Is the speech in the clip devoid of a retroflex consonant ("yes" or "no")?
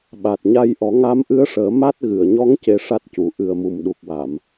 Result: no